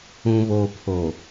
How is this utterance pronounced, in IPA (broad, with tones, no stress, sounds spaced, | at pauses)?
ũ˨ β oː˨ pʰ o˨